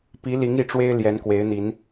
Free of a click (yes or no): yes